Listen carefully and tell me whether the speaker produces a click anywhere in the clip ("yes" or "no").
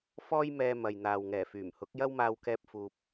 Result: no